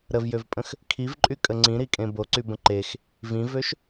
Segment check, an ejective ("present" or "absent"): present